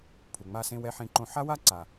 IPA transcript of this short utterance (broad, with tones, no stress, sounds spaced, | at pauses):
pʰ u˨ ŋ͡m a˧ s ẽ˧ w ɛ˧ ħ ẽ˧ ǃ õ˧ ħ a˦ w a˦ ǀ a˨